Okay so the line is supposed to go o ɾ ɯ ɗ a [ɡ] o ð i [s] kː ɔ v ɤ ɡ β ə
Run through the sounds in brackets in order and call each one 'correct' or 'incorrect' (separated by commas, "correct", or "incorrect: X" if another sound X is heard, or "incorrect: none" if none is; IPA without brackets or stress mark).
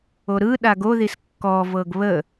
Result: correct, correct